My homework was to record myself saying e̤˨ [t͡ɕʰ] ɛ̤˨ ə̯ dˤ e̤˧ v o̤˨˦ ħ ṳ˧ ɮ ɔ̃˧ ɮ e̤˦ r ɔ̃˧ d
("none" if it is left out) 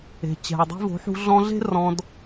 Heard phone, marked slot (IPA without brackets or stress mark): t͡ɕ